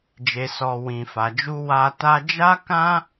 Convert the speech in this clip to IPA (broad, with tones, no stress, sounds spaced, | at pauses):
d͡ʒ e˨ s ɔ˨ w ĩ˨ f a˨ d͡ʒ u˧ w a˧ t a˧ d͡ʒ a˦ k ã˦